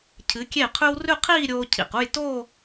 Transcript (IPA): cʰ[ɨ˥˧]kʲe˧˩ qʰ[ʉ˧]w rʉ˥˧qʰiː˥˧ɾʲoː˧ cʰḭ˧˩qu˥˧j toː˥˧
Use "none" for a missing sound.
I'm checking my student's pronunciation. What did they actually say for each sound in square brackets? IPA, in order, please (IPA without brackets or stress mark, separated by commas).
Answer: ɨ˩˧, ʉ˧